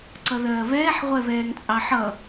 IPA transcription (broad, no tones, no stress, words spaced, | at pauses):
ǀʌðɜːβɛːħ ʁʷɛβɛːŋt͡sʼɑħʌ